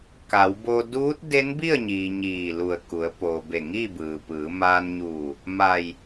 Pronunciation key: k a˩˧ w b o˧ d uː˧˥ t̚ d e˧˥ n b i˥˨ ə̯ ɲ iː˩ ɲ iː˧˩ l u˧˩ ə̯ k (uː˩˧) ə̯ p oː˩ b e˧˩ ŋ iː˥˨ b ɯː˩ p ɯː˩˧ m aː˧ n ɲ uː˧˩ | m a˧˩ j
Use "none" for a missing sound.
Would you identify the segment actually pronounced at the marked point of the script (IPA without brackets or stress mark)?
u˩˧